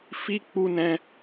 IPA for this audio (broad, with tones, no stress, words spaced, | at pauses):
fi˧ k͡pu˧nɛ̃˧